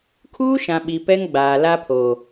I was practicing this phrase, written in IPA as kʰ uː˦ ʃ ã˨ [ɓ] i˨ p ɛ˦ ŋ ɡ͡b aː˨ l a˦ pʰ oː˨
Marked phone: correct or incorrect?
correct